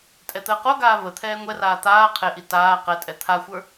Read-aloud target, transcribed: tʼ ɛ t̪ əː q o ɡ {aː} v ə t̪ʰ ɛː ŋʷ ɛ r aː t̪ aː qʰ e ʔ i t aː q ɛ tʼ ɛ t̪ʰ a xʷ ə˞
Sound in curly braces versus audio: correct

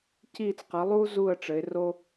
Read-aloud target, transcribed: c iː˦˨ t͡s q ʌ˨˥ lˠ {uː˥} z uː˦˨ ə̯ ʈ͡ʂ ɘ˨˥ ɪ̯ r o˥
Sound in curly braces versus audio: correct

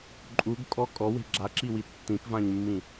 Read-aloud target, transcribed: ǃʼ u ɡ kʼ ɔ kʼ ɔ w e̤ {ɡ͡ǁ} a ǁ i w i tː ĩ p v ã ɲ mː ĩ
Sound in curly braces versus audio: correct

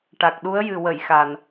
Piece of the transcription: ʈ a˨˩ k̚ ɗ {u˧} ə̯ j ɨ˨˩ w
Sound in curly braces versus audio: incorrect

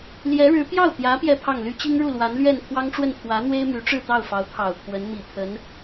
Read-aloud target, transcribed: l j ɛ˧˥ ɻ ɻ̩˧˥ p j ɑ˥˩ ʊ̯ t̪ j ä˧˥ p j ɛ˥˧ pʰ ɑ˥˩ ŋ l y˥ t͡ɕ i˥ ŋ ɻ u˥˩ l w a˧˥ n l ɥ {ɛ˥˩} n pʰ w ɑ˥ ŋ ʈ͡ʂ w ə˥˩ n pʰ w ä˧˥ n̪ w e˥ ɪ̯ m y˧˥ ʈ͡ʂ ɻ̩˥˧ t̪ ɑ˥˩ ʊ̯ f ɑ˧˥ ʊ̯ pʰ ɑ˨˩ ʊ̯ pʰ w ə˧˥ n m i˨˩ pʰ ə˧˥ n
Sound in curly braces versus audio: correct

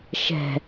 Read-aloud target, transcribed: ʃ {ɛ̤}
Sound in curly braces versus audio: correct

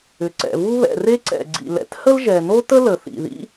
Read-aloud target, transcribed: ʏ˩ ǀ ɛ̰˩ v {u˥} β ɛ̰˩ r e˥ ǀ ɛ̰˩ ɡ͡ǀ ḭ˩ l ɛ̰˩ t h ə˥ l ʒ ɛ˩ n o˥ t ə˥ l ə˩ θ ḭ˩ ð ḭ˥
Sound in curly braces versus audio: correct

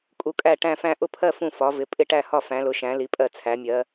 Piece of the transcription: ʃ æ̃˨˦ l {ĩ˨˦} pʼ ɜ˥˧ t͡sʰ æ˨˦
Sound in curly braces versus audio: incorrect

